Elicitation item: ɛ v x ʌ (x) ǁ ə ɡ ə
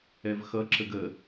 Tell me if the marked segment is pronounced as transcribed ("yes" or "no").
no